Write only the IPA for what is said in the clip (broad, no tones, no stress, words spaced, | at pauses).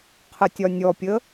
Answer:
qʰətʲɒnʲɔpʲə